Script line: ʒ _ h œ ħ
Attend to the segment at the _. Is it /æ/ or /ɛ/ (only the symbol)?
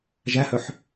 æ